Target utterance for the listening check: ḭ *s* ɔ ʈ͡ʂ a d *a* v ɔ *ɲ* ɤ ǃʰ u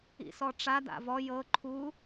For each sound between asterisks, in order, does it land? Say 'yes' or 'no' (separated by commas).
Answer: yes, no, no